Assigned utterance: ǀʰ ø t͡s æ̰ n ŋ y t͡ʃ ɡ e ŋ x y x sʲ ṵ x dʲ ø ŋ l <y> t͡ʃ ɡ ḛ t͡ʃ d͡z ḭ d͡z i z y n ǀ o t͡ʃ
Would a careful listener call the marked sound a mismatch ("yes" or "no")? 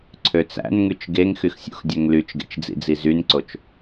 no